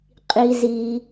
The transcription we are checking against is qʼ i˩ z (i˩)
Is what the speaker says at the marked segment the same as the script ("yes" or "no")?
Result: yes